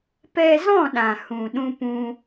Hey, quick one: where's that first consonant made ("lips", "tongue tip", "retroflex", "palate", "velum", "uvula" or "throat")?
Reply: lips